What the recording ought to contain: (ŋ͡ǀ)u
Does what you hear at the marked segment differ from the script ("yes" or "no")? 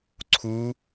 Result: yes